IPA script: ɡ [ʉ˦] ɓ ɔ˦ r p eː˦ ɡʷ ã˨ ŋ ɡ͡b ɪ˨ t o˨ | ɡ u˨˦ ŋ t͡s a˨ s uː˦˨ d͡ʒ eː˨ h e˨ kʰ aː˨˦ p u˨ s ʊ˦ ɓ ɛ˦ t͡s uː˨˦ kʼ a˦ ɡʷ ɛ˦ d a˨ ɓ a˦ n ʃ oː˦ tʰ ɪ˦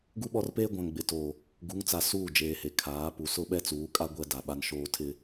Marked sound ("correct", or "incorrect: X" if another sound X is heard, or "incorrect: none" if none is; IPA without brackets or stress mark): incorrect: u˦